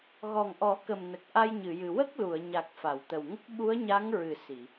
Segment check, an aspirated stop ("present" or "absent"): absent